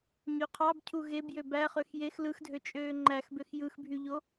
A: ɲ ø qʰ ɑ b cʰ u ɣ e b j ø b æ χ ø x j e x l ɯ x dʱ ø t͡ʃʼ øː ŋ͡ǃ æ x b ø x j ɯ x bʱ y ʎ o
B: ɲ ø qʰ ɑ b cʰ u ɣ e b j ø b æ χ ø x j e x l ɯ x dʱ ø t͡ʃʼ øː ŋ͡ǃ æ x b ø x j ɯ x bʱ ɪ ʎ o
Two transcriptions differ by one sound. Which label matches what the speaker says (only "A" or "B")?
A